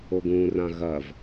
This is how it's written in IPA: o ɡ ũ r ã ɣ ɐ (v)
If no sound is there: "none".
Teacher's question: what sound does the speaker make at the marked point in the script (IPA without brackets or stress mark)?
v